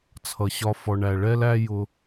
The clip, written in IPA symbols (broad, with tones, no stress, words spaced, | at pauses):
t͡sʰʌ˩ɕɒ˧ fɔ˩ ɳæ˩ɭɛ˥læ˥ jʊ˧